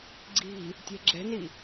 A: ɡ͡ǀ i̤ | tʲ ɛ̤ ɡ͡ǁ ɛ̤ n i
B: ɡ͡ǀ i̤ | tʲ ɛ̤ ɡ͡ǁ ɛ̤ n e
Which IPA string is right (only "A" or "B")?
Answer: A